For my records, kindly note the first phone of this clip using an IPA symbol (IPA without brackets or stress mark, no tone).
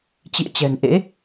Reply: t͡ɕ